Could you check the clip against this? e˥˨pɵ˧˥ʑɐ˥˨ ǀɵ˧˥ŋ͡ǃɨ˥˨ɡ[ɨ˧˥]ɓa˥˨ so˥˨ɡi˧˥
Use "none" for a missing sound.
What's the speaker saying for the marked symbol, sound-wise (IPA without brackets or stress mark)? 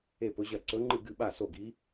ɨ˥˨